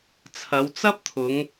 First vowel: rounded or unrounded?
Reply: unrounded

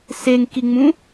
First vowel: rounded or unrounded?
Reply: unrounded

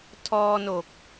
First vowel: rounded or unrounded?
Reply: rounded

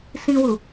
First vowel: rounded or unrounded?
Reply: unrounded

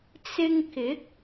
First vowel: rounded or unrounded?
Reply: unrounded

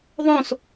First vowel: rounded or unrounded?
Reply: rounded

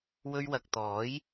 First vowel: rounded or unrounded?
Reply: rounded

